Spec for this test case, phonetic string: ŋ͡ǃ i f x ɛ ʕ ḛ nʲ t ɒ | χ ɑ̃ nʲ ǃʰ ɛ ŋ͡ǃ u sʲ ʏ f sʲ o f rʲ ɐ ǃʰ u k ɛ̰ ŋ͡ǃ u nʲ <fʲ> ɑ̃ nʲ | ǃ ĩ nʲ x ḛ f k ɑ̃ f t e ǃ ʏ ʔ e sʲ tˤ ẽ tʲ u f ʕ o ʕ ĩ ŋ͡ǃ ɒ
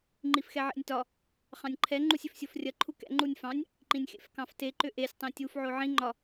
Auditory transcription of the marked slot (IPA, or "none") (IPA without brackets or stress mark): f